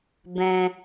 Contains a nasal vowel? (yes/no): yes